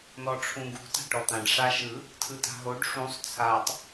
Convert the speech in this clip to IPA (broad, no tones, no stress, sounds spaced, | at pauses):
n ɔ ʈ͡ʂʰ ũ ɡ ṳ t a̤ ʈ ɔ t̪ ã ɖ ʂ a ʃ ɯ | tʰ ɯ t a̤ ɦ o ɖ ʂ ũ sˤ t͡sʰ a tˤ